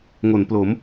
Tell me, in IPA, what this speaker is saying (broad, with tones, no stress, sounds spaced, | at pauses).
ŋ o˩˦ n p l o˩˦ m